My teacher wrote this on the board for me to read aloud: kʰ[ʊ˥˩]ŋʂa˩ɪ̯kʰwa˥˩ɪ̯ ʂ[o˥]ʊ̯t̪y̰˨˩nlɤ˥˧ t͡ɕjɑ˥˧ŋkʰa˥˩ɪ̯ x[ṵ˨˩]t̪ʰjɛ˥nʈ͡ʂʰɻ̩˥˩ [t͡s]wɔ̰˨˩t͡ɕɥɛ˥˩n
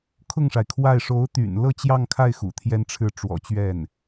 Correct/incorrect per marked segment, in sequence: correct, incorrect: o˧˥, correct, incorrect: ʈ͡ʂ

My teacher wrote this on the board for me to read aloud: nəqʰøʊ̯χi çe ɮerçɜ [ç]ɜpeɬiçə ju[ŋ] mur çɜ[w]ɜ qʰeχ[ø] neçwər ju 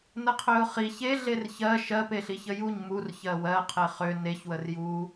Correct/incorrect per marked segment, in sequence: incorrect: ʃ, incorrect: ɲ, correct, correct

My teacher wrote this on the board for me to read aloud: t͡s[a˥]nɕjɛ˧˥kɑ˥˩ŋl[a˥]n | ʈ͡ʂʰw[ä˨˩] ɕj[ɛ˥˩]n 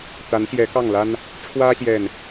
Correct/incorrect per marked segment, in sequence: incorrect: a˧˥, correct, incorrect: ä˥, correct

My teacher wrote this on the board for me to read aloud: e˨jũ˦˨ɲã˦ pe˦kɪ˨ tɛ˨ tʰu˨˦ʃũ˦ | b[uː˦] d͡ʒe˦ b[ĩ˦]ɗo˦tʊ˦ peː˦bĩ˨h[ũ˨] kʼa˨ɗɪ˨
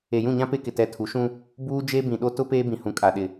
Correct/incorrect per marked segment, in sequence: correct, incorrect: ĩ˨, correct

